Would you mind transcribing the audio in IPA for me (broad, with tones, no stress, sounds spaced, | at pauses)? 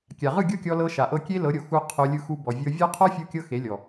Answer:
kʲ a˨ ʁ ɯ˦˨ ɡʲ o˦ kʲ ɔ˧ l ɤ˧ ʃ a˨ ʔ ɤ˧ kʲ e˦ l ɤ˨˦ ɾʲ o˨ x u˧ qʰ o˧ lʲ ɯ˧ x u˧ b ɔ˨ vʲ ɤ˧ vʲ ɔ˦ qʰ ɔ˦ fʲ u˧ kʲ ɤ˧ x e˨˦ lʲ ɔ˨